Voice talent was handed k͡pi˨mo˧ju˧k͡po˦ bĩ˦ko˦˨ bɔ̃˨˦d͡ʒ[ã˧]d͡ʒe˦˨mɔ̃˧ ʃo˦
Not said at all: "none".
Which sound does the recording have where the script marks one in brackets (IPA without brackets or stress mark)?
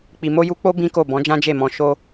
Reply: ã˦